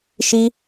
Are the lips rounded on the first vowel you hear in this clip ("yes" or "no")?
no